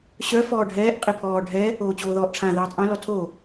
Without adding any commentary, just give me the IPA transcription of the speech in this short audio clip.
ɕ œ f ɔː ɖʱ ɛː ʔ qʼ i pʰ ɔː ɖʱ ɛ | oː t͡ɕ oː ð ɔː ʔ ʈ͡ʂʰ ã ð ɛː tˤ ʔ œ̃ l ɔ tʰ o

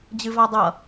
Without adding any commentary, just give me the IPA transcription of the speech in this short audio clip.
d͡ʑ ɨ v a dˤ ʌ

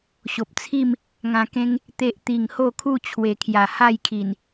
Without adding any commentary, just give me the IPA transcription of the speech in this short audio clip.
ɕ o˨ p̚ t͡sʰ i˥˧ m | ŋ ã˧ k ẽ˦ ŋ | t̪ e˦ ʔ t̪ i˨˩ ŋ h o˥˧ kʰ u˥˧ t͡ɕʰ w e˨˩ kʰ j a˨˩ h a˥˧ j kʰ i˨˩ n

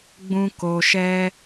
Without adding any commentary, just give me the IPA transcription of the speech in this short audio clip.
ɡ͡b ũ˦ k o˧ ʃ ɛ˦

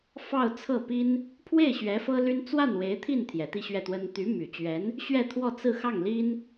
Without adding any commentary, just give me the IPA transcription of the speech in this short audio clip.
f ɑ˥˧ ʊ̯ t͡sʰ ɤ˥˩ p i˥ n | pʰ w e˥˩ ɪ̯ ɕ ɥ ɛ˧˥ f ɤ˥ l y˥ n t͡s w a˥˩ n w e˧˥ ɪ̯ t̪ʰ i˥˩ n t̪ʰ j ɛ˨˩ t̪ i˥˧ ɕ ɥ ɛ˥˩ t̪ w ə˥ n t̪ y˧˥ m y˨˩ t͡ɕ ɥ ɛ˧˥ n | ɕ ɥ ɛ˥˧ t̪ʰ w ɔ˥˧ t͡s ɹ̩˥˧ x ɑ˥˩ ŋ l i˥ n

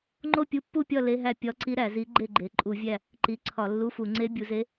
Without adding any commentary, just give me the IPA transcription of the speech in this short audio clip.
ŋ͡ǃ o˥˨ pʲ u˧˥ pː u˥˨ pʲ ɒ˥˨ l e˧˥˧ ɦ æ˥˨ pʲ ɒ˧˥ ǀ i˧˥ ɾ æ˧˩˧ z i˧˥ ɡ͡ǃ e˥˨ ɡ͡ǃ e˩˧ ǃʼ u˧˩˧ vʲ æ˥˨ | ǃ i˩˧ ǀʰ ɒ˧˩˧ lː u˧˥˧ f u˧˩˧ ŋ͡ǀ e˧˥ bʲ u˩˧ z e˧˥

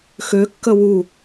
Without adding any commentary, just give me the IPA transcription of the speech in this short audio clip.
x ø kː ə w u

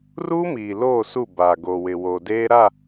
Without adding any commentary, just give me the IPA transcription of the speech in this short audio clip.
r uː˦ m iː˨ l oː˦˨ s u˦˨ b aː˨ ɡ o˨ w ɪ˨ w o˨ d eː˦ ɾ a˦˨

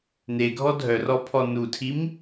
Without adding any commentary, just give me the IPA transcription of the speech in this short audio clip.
n e ɡʱ ɔ dʱ œ r ɔ pʰ ɔ n u tʰ i m

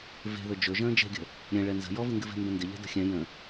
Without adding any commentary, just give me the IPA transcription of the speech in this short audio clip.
v e̤ ð ɵ d͡ʒ ɵ ʒ ə̃ː d͡ʒ e̤ ɡʲ ə̤ | ɾʲ ɛ̃ ɭ ɛ n z ə̤ j ɔ v ɨ ŋ ɡ ɨ v e̤ m b ə̃ n d ɪ ʎ ɛ̤ d ə̤ xʲ ɛ̃ j ə̃

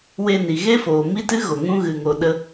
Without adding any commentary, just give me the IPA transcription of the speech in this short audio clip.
w e˧ n i˨ ɣ e˦ f oː˨ m i˦ t ɨ˦ ɣ o˨ ŋ ũ˦ ɣ ɨ˧ ŋ o˧ ɗ ə˦

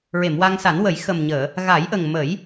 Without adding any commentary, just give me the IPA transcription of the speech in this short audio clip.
ɹ e˨˩˨ m w a˧ ŋ s a˨˩˦ n w ə˨˩˦ j x ə˨˩ m ɲ əː˨˩˨ | ɣ a˨˩˦ j ʔ ə˨˩ ŋ m ə˨˩˦ j

